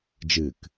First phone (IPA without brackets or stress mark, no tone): d͡ʒ